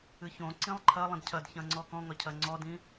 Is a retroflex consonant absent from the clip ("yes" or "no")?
yes